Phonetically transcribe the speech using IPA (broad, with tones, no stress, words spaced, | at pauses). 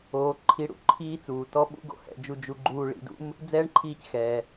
oː˧ ǃʰi˧ɽṵ˩ ǃʰiː˥t͡suː˩ tɔ˥ ɓṵ˥ɡo̰˧ hɛ̰˧d͡ʒu˧ d͡ʒu˧ɡ͡ǃuː˧ ɭḭ˧dṵ˥m | d͡zɛː˥ɳǃʰiː˧cxɛː˩